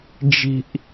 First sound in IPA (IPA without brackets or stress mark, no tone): d͡ʒ